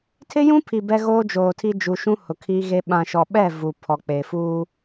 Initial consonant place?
alveolar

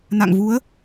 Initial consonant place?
alveolar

